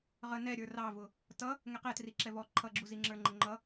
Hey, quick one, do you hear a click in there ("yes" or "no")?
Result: yes